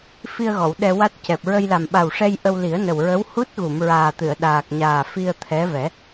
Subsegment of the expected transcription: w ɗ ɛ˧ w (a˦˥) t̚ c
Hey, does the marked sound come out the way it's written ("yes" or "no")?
yes